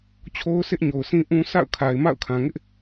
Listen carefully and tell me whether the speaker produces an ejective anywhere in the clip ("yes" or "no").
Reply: no